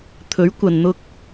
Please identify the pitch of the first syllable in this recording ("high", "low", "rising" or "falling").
rising